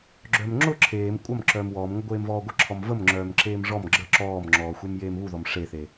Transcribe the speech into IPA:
ɡ͡ǁœmŋ͡ǁʊ ǁʰeːm kʷʼɐm ǁœːmwɔːmŋʷə ɡʷeːmvɔːɡʷə ǁʰɔmvəmŋ͡ǁœːm ǁeːmʐɔm ɡ͡ǁə ǁɔːmŋ͡ǁɔːxʷem jeːmβuðɔm ʂeθe

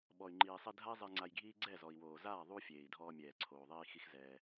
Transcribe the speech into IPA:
ɓɔ˨y̯ŋ͡ǃiː˨sˤi˧dʱa˦i̯ zˤi˧ŋ͡ǀa˧jɡʱiː˦ ɡ͡ǀɛ˦˨zɔ˨i̯woː˨ zaː˦˨ ðˤu˦ fʲeː˨i̯dʱɔː˧mʲɛː˨ ǀʰoː˨ðˤiː˧ xi˦xzɛː˧

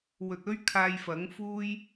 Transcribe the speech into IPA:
wɵ˨t̚ɵ˥ɥ kʰaː˧jfɐ˨˥ŋfuː˥j

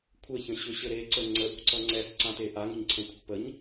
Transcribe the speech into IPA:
kʷʰɘçə̃ɕʏɕɘ ɾeǀə ŋ͡ǀəʔṳǀʌ ŋ͡ǀɛsǀãte ʔaŋə̤ɲǀʰẽkʷʰə̤ pəɲ

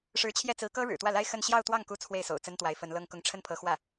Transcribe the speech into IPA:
ʂɻ̩˧˥t͡ɕʰjɛ˥˩ t͡sɹ̩˧˥kɤ˥ ɻɻ̩˨˩t̪wä˥˩la˥ɪ̯ xə˥˧n ɕjɑ˥˧ʊ̯ t̪wɑ˥˩ŋku˧˥ t͡sʰwe˥˩ɪ̯so̰˨˩ʊ̯t͡sə˥nt̪wa˧˥ɪ̯ fə˧˥nlɤ˥˧ŋkʊ˥˧ŋ ʈ͡ʂʰə˥˩npʰɤ˧˥xwä˥˩

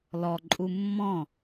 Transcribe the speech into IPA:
lɔ ǃʼumːɔ̃

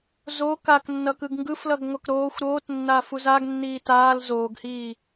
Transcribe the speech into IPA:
zo kaknːʌkɯɡ ŋɡɯflʌɡŋʷʌk ɾoːxʷ ɾoːtnːaːfuz aɡnːiː taːl zoːɡhiː

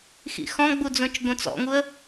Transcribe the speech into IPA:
xḭxɔ̃ɡ͡bud͡zõt͡ʃ ɡõt͡sɔ̰ŋuə̯

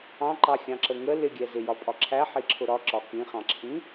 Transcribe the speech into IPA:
ɑ̃ǃɑxʲɑ̃ǁə ŋə lɪɡʲɛ zɪjɒpʼɒ ǁʰæħiǁʰʊ ɾɒǁɒ kĩχɑ̃ǁʰĩ

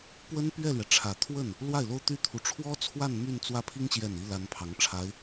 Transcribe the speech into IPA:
pwə˥npɥɛ˥˩lɥɛ˩ ʈ͡ʂʰä˨˩t̪ʰwə˥˩n | lwa˥˩ɪ̯lo˥ʊ̯t̪y˥ t̪ʰu˧˥ ʈ͡ʂʰwɔ˥t͡sʰwa˥˧n my˥˧nt͡swä˥˩pʰi˥ŋ ɕjɛ˥˩ni˥ la˥npʰɑ˧˥ŋʈ͡ʂʰa˧˥ɪ̯

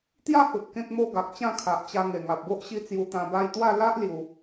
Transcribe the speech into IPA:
t̪ja˦hu˨t̚ kẽ˦k̚mo˦ ɡa˨k̚t͡ɕã˥˧kʰa˨ʔt͡ɕa˧ ŋe˨˩ŋa˨p̚bo˦ʔ ɕi˦ t͡sju˧t̪ã˧ ba˧jt̪wa˥˧ la˦ʔ lju˧

